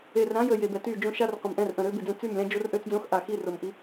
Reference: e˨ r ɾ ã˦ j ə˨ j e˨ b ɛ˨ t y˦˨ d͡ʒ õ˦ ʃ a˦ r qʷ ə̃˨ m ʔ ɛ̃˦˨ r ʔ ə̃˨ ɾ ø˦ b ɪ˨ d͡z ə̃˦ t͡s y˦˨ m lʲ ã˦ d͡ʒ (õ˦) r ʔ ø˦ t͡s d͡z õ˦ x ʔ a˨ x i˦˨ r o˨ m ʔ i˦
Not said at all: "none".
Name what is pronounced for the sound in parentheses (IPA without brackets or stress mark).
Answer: o˦